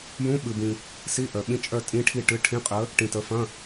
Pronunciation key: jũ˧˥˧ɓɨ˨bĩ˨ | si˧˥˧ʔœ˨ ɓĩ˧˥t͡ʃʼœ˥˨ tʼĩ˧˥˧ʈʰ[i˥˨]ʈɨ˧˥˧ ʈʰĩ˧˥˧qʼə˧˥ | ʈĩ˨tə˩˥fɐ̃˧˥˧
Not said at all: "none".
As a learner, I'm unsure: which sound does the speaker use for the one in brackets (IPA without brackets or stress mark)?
i˥˨